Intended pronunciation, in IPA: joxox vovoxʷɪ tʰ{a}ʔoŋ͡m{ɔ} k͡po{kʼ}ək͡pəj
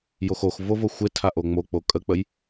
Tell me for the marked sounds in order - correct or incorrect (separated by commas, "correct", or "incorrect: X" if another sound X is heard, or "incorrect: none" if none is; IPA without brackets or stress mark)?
correct, incorrect: o, correct